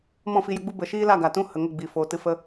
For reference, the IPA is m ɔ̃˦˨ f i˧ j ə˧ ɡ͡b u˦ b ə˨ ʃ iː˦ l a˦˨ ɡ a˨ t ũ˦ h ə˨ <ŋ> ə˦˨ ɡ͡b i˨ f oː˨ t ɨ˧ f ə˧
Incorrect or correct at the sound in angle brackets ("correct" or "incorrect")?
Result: correct